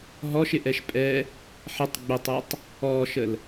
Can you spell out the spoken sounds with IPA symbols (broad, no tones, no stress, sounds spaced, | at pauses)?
ɦ ɔ ʃ ɪ ʔ ɛ ʃ pʼ ɛ | ħ ɪ tˤ ɡ͡b ɪ tˤ ɛ tˤ | ɔ ʃ ə l